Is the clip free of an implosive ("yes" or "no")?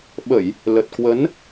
no